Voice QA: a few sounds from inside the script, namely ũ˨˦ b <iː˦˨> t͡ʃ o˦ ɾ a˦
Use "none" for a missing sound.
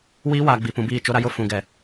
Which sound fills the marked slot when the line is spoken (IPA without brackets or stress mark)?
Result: iː˦˨